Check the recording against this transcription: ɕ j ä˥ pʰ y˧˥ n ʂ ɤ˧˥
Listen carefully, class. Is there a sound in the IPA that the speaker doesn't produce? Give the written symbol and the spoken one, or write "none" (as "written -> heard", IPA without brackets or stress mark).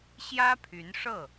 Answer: ɤ˧˥ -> ɤ˥˩